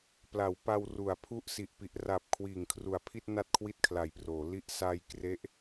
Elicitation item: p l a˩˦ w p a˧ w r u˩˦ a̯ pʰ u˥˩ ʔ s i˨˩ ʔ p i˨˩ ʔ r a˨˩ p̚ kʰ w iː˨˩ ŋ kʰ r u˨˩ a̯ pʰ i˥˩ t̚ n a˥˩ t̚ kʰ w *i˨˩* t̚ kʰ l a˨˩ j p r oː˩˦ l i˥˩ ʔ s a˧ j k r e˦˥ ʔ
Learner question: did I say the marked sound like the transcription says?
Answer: no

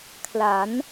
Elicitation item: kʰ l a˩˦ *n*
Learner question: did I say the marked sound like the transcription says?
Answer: yes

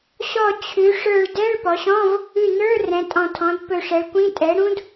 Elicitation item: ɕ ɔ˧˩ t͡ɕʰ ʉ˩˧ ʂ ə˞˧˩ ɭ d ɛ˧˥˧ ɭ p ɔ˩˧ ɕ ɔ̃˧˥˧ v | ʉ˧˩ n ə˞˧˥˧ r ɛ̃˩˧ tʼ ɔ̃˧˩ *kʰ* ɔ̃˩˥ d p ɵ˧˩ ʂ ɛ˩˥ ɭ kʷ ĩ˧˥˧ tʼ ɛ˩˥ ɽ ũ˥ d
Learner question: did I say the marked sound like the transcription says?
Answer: no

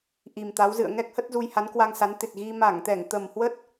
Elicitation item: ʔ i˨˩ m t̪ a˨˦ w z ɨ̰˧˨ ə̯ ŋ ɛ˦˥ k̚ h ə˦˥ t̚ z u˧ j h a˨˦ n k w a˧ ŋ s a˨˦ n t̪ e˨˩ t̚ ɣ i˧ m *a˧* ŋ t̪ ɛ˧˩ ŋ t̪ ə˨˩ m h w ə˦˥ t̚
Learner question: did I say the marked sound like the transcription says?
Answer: no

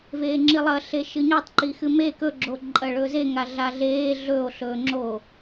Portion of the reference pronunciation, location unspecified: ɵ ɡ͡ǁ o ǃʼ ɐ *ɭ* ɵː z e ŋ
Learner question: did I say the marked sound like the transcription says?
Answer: yes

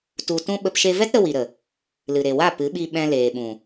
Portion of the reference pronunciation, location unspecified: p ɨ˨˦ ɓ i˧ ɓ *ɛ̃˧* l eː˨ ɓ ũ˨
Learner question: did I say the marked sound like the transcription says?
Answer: yes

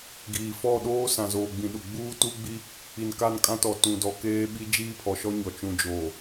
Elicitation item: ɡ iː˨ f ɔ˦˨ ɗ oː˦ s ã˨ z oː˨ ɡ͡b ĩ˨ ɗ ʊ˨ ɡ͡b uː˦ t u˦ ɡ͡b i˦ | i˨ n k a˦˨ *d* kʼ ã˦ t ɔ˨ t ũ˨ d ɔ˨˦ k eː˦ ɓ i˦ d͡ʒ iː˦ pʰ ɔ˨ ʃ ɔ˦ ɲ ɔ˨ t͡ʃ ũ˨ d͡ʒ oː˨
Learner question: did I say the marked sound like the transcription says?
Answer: no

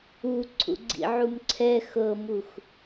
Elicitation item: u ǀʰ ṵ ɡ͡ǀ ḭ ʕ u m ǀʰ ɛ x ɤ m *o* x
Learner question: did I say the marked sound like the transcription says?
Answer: no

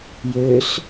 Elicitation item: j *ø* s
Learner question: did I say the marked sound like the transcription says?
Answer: yes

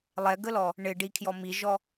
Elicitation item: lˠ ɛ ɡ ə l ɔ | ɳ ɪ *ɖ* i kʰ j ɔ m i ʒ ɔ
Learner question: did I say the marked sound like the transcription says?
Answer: yes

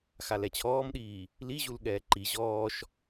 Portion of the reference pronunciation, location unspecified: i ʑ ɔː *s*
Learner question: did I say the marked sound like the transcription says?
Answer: no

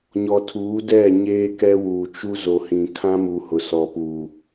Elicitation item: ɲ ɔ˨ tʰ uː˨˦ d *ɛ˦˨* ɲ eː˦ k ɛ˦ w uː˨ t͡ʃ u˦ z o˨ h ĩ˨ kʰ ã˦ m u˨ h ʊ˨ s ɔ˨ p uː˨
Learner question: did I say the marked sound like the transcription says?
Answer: yes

